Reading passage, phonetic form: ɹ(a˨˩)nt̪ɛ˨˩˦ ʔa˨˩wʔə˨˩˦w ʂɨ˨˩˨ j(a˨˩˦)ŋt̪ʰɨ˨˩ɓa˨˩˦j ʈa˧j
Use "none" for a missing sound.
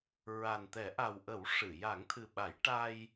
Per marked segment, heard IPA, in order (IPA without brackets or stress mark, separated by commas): a˨˩, a˨˩˦